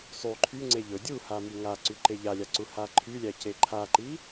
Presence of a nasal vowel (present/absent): absent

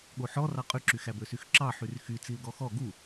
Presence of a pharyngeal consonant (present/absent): present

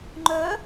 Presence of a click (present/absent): present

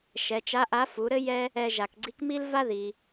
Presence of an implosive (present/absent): absent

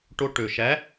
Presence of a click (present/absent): absent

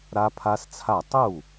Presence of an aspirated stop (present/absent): present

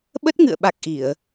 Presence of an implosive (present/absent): present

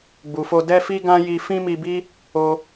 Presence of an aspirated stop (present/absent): absent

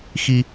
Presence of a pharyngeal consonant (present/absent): absent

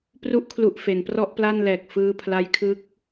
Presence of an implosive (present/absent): absent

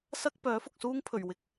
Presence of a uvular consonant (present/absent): absent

